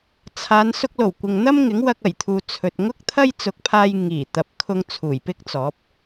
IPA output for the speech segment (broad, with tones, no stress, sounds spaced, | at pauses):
t͡sʰ aː˨˧ n s ʊ˧ k̚ l o˨˩ w kʷ ɪ˨ ŋ n̪ ɐ˥ m ŋ ɪ˨˥ ŋ w ɐ˧ k̚ ɐ˨˩ j t̪ʰ uː˨ t͡sʰ ɵ˨ t̚ ŋ ʊ˥ k̚ t̪ʰ ɐ˥ j t͡s ʊ˨˥ k̚ pʰ aː˧ j ŋ iː˨˩ t̪ ɐ˨ p̚ kʰ ʊ˧ ŋ t͡sʰ uː˨˩ j p ɪ˥ k̚ t͡s ɔː˨˥ p̚